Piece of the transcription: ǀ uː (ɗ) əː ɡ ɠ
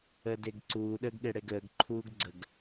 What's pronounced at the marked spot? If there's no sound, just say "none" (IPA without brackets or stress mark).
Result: ɗ